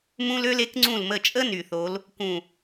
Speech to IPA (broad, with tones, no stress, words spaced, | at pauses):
mũ˥lø˥l e˩˥kŋ͡ǀũ˦˨lmə˦˨t͡ʃʼə˥ ny˨θo˧˥l | kũ˦˨